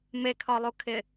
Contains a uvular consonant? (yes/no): no